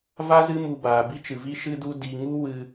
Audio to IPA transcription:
v a˦ z ɨ˦ m u˧ b aː˨ b i˧ t͡ʃ ɨ˨ v i˧ ʃ ɨ˧ d u˧ d i˧ ŋ u˦ w ɨ˧

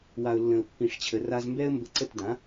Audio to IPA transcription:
w a˩ ʊ̯ lː ə̃˩ ʊ̯ pː ĩ˩ ʂ t͡ɕʰ ə˩ r a˧ z m b ɛ˥ ə̯ m b ə˧ ǀ ə˥˩ t d ã˩˥

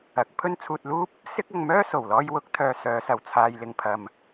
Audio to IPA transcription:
ɐ˨˥ k̚ pʰ ɵ˥ n t͡sʰ uː˧ t̚ l uː˥ p̚ | s ɪ˥ k̚ ɐ˧ ŋ m œː˥ s o˨˩ w l ɔː˧ j w ʊ˨˥ k̚ t̪ʰ œː˨ s œː˨˧ s ɐ˨˩ w t͡sʰ aː˨ j l ɪ˨ ŋ pʰ ɐ˨ m

